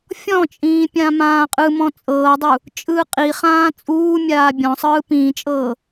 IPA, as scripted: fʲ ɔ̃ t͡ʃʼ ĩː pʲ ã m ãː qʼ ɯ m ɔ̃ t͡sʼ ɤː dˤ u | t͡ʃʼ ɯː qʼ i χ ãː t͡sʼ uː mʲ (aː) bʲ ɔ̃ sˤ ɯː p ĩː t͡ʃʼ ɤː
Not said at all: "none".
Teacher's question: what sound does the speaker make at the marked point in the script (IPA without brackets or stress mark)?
aː